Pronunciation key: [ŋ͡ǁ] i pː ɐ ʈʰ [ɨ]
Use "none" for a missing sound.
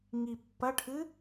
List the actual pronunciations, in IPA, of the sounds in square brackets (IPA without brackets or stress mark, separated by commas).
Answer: ŋ, ɨ